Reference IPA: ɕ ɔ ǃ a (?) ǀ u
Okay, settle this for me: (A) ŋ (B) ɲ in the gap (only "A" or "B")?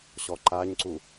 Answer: B